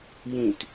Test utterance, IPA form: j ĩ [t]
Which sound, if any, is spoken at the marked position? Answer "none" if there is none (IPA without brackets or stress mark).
t